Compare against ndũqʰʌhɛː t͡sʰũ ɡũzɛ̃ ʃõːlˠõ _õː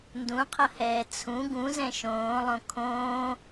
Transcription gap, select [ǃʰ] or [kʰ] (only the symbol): kʰ